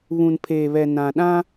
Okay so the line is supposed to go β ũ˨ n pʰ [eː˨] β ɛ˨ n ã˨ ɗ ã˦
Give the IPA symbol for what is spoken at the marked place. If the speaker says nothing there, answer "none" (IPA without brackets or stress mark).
eː˨